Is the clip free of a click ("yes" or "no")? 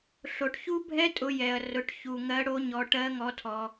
yes